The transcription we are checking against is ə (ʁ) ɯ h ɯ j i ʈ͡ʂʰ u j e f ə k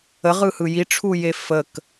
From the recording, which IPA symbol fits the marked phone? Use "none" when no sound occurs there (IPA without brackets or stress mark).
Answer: ʁ